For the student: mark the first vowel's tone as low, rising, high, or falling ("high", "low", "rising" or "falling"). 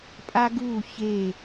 high